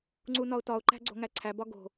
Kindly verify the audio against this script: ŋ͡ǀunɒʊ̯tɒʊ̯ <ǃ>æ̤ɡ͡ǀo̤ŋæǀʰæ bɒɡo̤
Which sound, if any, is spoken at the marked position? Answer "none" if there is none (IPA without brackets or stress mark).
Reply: ǃ